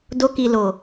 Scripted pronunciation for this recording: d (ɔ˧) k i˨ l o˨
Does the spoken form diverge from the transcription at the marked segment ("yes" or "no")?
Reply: yes